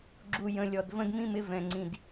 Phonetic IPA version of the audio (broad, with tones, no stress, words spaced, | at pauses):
ɡ͡ǁu˨˩jə̃˨˩lʲɔ˨˩d və̃˦dmĩ˦mɪ˦ vɛ̃˨˩ŋ͡ǀĩ˨˩d